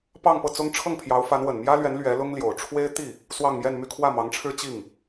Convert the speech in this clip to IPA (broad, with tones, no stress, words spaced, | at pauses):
pɑ˥˧ŋpɤ˥˩t͡sʊ˥ŋ ʈ͡ʂʰɤ˥˩ŋpʰjɑ˧˥ʊ̯fa˧˥n wə˨˩nmjä˥lɥɛ˧˥n lɥɛ˧˥lʊ˥ŋljo˨˩ʊ̯ ʈ͡ʂʰwe˥ɪ̯t̪i˥˩ | swɑ˥˧ŋmjɛ˥˧nmy˥˧ kʰwä˥˩mɑ˧˥ŋʈ͡ʂʰɻ̩˥ t͡ɕi˥˩ŋ